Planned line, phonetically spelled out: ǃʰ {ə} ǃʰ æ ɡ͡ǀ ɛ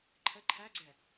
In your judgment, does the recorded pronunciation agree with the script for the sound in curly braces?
yes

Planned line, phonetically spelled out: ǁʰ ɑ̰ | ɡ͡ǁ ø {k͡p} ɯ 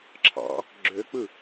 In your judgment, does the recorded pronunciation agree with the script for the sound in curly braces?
yes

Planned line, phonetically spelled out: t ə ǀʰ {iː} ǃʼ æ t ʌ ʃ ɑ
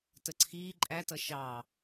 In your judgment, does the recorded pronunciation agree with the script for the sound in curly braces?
yes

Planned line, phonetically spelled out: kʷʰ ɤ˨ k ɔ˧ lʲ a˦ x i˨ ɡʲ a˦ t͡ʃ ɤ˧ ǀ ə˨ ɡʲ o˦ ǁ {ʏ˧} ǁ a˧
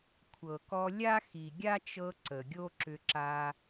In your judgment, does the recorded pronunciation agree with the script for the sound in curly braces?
yes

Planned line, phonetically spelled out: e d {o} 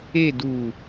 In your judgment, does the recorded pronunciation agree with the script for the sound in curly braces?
no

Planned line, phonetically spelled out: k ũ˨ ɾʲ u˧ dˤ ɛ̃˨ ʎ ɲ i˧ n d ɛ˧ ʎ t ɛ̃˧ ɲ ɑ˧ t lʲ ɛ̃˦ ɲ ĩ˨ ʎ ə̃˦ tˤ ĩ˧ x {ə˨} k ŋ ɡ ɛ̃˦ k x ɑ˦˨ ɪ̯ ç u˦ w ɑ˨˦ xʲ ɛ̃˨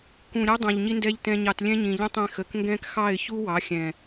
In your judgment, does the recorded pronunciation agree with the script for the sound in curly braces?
yes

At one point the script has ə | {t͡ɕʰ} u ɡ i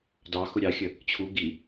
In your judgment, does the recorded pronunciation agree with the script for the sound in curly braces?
yes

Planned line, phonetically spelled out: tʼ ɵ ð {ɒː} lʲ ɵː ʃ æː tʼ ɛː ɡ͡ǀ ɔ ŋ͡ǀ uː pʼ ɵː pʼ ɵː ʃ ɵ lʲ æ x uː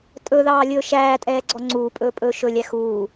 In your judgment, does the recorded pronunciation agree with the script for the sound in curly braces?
no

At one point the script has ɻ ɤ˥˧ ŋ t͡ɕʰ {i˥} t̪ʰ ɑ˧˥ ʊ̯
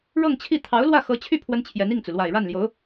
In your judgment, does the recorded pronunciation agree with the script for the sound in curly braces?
no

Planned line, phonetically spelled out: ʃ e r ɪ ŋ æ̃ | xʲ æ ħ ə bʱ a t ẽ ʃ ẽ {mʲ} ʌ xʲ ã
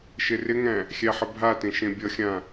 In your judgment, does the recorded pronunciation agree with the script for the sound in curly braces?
no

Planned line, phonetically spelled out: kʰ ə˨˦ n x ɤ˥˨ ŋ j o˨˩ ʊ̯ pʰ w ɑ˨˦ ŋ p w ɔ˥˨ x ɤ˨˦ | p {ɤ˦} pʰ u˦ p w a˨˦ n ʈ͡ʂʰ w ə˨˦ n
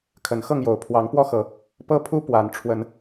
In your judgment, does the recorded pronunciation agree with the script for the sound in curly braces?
yes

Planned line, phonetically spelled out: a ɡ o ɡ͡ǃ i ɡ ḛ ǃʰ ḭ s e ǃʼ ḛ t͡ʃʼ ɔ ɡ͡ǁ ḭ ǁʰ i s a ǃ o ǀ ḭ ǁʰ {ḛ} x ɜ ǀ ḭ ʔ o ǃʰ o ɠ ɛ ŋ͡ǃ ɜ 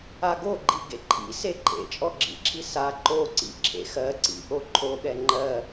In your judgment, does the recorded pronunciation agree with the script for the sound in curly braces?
yes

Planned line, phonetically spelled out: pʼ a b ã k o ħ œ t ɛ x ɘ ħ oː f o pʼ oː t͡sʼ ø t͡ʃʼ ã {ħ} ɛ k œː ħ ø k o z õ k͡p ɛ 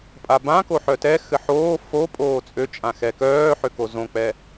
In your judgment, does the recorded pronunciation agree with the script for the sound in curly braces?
no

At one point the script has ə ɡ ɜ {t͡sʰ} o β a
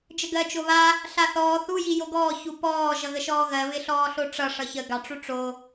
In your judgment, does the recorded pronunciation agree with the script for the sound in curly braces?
no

